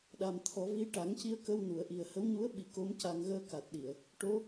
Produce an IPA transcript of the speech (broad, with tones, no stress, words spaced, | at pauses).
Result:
ɗa˨˩mt̪ʰɔ˨˩˦vi˧˥ ʈa˨˩˦ŋci˧ə̯kə˧w nu˨˩˨ə̯ ʔi˨˩ə̯hə˧˥wɲu˧˥ə̯ ɓi˨˩˦ko˧˥m ca˧ŋ ɣəː˧ka˨˩t̚ɗi˨˩˨ə̯ | ʈo˧˥